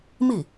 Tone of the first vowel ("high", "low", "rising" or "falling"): falling